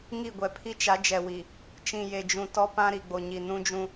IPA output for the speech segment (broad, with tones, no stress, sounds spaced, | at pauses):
ŋ i˦˨ ɡʷ ɛ˨ pʰ i˦ t͡ʃ a˨˦ d͡ʒ ɛ˨ w i˨ | t͡ʃ ĩ˨ j e˨ d͡ʒ ũ˨ t ɔ˦ p ã˦ ɾ i˨ ɡ͡b o˨ ɲ i˨ n ũ˦ d͡ʒ ũ˦